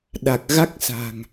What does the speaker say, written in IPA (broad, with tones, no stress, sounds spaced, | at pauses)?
ɗ a˨˩ k̚ ɣ a˦˥ k̚ s a̤˨˩ ŋ